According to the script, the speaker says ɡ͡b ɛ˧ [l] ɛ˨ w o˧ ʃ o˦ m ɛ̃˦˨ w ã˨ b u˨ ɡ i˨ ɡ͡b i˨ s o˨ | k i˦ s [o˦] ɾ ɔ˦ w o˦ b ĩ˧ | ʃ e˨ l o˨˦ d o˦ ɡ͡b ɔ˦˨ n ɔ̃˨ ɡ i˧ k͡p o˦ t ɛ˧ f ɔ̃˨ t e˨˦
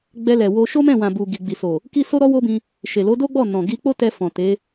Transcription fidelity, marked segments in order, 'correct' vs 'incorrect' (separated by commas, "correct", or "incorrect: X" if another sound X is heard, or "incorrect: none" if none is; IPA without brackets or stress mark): correct, correct